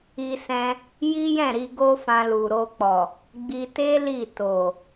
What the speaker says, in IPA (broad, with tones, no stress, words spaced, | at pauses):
i˧sɛ̃˧ | ji˦jɛ̃˦˨ɾi˧ɡo˦ fã˧lu˨ɾo˧k͡pɔ˨ | ɡ͡bi˧te˦ li˦˨to˨